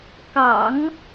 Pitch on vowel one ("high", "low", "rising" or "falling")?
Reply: low